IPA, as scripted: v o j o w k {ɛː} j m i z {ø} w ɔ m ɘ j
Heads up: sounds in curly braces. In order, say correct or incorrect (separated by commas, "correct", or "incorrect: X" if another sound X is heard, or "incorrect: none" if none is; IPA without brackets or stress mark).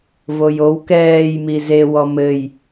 correct, incorrect: e